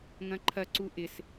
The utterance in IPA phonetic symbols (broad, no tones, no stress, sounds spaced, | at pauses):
ŋ ɐ̃ ǃʰ ɐ ǀ u ʔ ɪ s